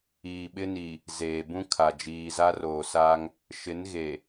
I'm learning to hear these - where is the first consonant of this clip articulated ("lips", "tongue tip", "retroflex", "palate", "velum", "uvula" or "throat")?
lips